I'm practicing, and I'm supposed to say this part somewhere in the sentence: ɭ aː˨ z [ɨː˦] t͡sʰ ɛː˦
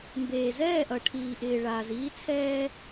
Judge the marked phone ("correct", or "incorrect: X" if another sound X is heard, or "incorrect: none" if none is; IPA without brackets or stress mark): incorrect: iː˦